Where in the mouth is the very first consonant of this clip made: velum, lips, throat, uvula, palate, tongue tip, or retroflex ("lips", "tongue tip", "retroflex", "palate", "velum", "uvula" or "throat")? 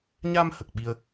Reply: palate